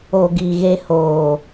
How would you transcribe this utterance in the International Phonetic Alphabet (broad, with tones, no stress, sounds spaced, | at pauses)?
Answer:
o˨ ɡ i˨ ɣ e˦ h oː˨